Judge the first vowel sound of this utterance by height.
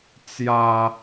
low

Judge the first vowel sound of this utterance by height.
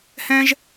mid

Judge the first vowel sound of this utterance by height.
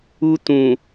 high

